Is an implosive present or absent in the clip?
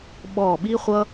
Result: present